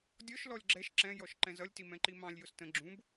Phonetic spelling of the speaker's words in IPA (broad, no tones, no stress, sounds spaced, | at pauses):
dʲ ɔ ʃ l ɔ lʲ ɡ͡ǁ ɛ ʃ ǁ ɛ̃ j ɔ ʃ ǃ ɛ̃ z ʌ lʲ t i m ɛ̃ ǃ i m ɑ̃ lʲ j ʊ s t ə̃ ɡ͡ǁ ũ b